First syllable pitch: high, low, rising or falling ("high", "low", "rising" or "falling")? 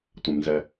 low